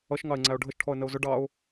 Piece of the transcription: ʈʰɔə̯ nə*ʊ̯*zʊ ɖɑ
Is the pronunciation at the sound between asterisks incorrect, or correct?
correct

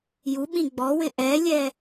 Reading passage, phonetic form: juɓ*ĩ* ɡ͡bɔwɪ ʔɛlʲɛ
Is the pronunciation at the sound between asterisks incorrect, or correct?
correct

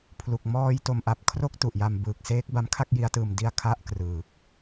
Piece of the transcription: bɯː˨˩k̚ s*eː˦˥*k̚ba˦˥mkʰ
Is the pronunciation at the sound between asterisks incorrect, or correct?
correct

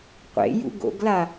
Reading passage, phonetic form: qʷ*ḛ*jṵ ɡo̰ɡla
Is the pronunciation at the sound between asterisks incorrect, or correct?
correct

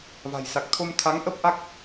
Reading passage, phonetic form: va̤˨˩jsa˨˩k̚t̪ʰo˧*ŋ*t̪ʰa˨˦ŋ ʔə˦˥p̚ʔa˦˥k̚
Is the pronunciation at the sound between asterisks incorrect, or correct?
incorrect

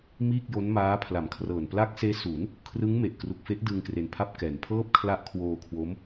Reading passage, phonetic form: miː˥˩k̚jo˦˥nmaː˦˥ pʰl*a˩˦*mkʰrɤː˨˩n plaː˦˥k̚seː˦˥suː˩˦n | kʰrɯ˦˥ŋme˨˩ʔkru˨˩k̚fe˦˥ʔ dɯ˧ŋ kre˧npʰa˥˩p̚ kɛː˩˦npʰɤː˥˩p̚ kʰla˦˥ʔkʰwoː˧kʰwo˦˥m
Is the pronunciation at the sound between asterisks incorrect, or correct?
correct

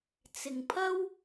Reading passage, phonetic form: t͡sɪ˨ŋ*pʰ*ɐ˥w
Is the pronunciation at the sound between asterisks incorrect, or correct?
correct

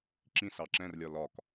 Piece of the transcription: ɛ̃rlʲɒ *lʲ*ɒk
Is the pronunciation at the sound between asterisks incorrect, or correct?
incorrect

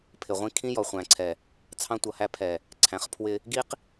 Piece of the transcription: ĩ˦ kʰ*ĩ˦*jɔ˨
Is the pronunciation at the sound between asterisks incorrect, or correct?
correct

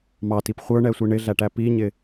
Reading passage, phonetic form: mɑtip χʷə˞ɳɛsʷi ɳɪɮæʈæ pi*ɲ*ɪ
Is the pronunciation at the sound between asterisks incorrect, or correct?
correct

